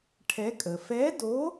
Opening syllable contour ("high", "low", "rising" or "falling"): rising